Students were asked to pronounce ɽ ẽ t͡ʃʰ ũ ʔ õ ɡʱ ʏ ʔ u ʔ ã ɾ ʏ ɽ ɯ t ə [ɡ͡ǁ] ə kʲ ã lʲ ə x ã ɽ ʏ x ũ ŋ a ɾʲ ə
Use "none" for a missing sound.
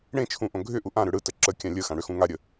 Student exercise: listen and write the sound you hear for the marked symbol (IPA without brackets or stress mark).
ǁ